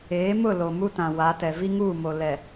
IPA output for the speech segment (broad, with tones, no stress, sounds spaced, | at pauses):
eː˨˦ m ʊ˦˨ l o˨ m u˦ t ã˨ w a˨˦ t ɛ˨ v i˦ ŋ uː˦˨ m o˨ l ɛ˨